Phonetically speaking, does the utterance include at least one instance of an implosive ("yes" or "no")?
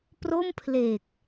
no